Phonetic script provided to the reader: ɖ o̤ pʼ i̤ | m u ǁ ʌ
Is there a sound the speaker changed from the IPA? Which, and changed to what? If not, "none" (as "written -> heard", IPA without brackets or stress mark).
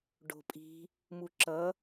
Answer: none